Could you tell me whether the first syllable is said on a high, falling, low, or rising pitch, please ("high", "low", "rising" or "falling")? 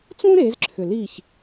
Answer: high